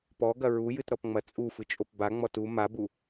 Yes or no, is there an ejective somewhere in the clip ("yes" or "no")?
yes